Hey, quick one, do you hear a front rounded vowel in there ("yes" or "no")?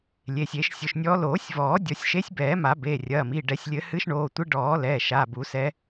no